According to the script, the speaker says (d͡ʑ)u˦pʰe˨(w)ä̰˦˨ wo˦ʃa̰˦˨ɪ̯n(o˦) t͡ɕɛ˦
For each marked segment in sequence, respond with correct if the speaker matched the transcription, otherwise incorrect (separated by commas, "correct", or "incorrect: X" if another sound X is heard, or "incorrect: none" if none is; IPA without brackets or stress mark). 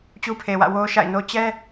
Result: incorrect: t͡ɕ, correct, correct